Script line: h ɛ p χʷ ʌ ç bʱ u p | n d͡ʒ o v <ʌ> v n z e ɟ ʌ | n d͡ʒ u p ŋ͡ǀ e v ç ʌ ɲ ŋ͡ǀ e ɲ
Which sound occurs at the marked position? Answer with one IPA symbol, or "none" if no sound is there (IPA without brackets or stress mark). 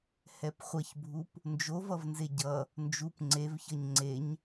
ʌ